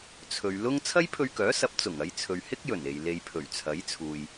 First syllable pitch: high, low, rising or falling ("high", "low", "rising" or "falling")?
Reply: low